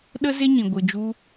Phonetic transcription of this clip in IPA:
ɗ ə˦ z e˦ ɲ ĩ˨ ɡʷ ɨ˨ d͡ʒ u˧

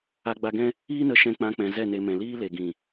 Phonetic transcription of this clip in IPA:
a˧ ɡ͡b a˧ ɡ ɛ̃˦ | iː˦ n ə˧ ʃ ɛ̃˧ k͡p ã˧ k͡p ɛ̃˨ z ɛ˦˨ n e˧ m ɛ̃˨ l iː˦ l e˨ ɡ ĩ˨

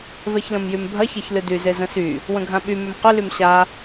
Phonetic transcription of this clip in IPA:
v ɛ ç l ə̃ m j y m bʱ ɐ ç ɛ ç l ɨ d y z e z ə̃ s y | w ə̃ ɡʱ ã ɓ y m ʏ m q ʏ l y m ɕ a

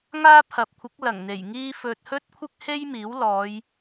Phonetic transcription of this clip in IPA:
ŋ aː˥ pʰ ɐ˨ p̚ kʷʰ ɪ˨˥ k̚ l ɐ˨˩ ŋ n̪ e˨˩ j ŋ iː˥ f ɵ˧ t̚ h ɵ˥ t̚ kʷʰ ɪ˥ k̚ h e˥ j m iː˨˥ w l ɔː˨˧ j

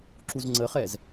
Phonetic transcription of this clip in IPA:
ǁ u z ŋ͡ǀ ə χ ɛː z

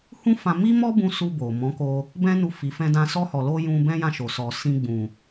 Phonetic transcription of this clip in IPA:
h ũ˦ f ã˧ m i˦ m ɔ˦ b ũ˧ s u˧ b o˨ m ɔ̃˨˦ k o˧ | b ɛ̃˦ n u˧ f i˨ f ɛ̃˧ d ã˧ s ɔ˧ h ɔ˨ l o˧ j ũ˧ b ɛ̃˦ j ã˦˨ ʃ o˨ s ɔ˨ s ĩ˧ ɡ͡b ũ˨

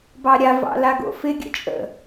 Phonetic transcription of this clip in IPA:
b ɑ ɾʲ a v ɑ̰ l a ɡ o̰ f ɪ ɡʲ ə̰ t͡ʃʼ ə̰

